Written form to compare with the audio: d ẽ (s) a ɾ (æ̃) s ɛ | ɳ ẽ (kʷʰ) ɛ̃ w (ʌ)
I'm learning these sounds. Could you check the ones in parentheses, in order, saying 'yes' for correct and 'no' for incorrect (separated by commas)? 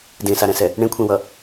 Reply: yes, no, yes, yes